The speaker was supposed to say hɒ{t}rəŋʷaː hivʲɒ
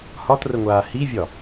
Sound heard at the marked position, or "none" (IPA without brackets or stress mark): t